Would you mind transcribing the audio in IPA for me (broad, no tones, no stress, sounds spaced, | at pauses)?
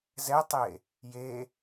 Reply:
z ɛ tˤ e | j e